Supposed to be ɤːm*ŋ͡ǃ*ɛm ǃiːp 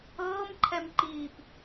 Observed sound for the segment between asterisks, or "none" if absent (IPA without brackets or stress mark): ǃʰ